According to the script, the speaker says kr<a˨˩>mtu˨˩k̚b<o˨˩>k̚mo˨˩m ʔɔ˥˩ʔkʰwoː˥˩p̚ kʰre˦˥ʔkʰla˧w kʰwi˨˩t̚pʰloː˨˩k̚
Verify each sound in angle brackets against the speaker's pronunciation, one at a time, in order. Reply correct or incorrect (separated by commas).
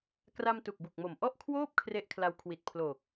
incorrect, incorrect